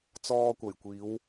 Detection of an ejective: absent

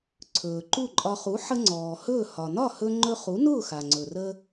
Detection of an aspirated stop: present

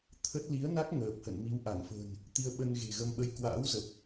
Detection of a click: absent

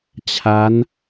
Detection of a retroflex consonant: absent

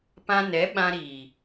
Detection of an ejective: absent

